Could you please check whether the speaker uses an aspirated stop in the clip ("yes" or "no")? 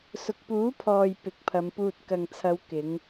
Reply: yes